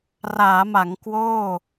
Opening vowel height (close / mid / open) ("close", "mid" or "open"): open